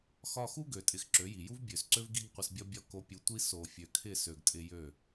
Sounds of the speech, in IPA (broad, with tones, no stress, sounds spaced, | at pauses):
x ɒ˧ x u˦ ɡ ø˨ tʼ ɪ˨ x ǁ ø˨˦ j i˨ j u˦ v bʲ ø˨ s ǀ ø˦ v ɡ i˦ ɡ qʷ ɪ˧ s bʲ ɒ˦ bʲ ɒ˦˨ k o˧ pʲ u˧ tʷ i˦ s o˨ fʲ ø˨ kʰ ɪ˦˨ s ø˨ ɡ tʼ ɪ˧ j ø˦˨